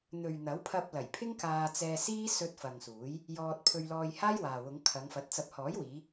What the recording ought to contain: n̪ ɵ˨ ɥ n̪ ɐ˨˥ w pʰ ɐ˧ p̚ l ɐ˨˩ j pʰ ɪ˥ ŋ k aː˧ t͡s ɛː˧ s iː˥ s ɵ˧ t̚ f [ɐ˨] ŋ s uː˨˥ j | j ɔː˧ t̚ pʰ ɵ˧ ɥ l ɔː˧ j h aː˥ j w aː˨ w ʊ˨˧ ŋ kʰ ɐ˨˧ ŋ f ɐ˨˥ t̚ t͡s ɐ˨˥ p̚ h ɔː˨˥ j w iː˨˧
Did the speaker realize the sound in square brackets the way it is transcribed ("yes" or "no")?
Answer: yes